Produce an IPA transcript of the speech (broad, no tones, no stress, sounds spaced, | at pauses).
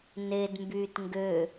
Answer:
n e d m b yː t ŋ ɡ ø